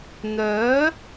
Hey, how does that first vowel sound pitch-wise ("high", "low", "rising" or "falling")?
rising